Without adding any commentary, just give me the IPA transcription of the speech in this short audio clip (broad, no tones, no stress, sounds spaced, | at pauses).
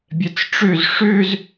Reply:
bʲ ɛ t͡s ʈ͡ʂ ø z ʂ ø z